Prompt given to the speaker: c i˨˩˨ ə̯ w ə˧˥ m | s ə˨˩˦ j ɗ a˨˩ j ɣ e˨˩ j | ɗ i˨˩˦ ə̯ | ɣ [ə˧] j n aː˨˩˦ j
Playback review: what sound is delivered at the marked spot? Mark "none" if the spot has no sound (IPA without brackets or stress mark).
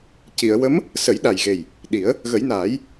ə˨˩˦